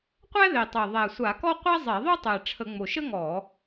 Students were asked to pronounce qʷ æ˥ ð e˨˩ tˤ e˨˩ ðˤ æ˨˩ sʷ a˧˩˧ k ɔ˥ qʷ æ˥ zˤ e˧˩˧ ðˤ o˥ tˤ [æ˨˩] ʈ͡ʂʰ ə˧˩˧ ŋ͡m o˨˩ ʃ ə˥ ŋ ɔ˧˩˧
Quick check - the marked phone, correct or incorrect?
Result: correct